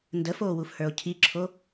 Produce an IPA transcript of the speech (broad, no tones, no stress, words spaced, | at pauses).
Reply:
ndəfoːwufhə˞o̯ cʰiǁʰo